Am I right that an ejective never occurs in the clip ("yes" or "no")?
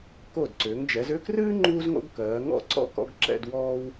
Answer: yes